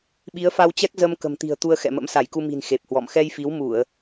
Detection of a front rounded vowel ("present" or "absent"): absent